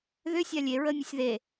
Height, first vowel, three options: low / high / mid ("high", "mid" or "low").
high